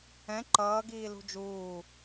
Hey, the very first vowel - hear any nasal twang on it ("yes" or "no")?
yes